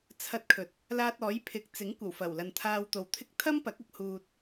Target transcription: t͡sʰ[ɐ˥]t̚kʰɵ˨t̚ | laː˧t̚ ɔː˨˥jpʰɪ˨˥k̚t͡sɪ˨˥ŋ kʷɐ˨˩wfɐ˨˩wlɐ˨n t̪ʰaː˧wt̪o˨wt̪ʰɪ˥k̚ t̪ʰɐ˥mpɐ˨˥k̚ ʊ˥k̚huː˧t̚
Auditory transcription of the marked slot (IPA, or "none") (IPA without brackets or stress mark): ɐ˧